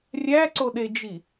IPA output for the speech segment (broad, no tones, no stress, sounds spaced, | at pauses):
rʲ æ ǀ o ɗ e d͡ʒ i